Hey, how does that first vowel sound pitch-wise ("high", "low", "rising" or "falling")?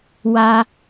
high